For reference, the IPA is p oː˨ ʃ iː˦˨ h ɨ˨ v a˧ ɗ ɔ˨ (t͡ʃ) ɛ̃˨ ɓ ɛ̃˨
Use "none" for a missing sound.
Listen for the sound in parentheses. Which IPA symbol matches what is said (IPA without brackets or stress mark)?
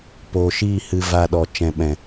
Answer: t͡ʃ